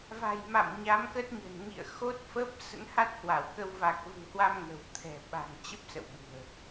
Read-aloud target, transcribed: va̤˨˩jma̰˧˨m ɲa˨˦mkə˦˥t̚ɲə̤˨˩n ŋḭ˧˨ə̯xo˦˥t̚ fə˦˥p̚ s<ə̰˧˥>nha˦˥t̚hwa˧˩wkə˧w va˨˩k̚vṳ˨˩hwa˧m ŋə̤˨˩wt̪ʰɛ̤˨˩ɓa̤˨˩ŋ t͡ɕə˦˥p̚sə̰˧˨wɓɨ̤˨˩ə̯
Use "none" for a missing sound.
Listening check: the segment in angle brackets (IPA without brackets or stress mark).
ə̰˧˥